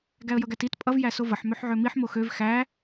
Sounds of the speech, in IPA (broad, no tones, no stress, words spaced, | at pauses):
ɡæə̯jʌɡætit pʼʌv jæsovʌħ møħʕømiħ moxøv xæ